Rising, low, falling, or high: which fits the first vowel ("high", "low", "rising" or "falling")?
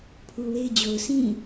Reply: low